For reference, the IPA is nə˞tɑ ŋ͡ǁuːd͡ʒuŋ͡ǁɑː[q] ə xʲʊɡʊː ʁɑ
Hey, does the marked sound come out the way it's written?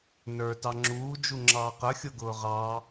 yes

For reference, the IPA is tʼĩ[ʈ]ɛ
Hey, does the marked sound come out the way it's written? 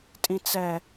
no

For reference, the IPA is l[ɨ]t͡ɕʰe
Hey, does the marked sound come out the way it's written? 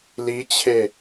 no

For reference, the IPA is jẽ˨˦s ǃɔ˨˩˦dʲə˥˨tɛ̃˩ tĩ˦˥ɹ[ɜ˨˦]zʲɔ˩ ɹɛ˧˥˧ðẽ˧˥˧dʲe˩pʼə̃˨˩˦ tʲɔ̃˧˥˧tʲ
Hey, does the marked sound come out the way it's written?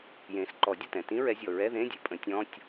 no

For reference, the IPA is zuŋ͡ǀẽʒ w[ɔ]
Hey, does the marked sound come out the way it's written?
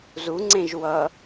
no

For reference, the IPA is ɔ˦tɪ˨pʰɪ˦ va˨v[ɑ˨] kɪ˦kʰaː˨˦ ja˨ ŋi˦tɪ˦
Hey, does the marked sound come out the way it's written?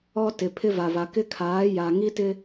no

